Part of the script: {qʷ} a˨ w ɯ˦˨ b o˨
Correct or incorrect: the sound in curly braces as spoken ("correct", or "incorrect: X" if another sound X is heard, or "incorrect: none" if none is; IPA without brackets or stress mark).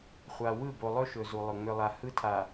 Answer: incorrect: χʷ